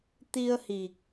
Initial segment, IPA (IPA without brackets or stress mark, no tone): t̪